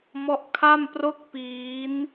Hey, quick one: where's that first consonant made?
lips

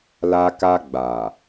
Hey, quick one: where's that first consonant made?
tongue tip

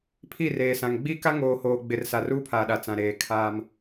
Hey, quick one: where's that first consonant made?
lips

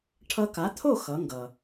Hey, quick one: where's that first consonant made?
retroflex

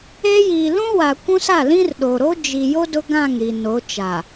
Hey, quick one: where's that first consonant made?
palate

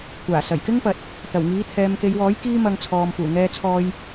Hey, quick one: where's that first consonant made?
velum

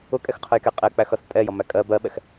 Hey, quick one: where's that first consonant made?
velum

